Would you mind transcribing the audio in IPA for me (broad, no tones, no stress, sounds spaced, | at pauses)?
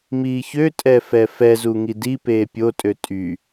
m iː ç ø tʼ ɛ f ɛ f ɛ z u ŋ i d i p eː pʲ o tʼ ø tʼ y